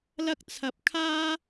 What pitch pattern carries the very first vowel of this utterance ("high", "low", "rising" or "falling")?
high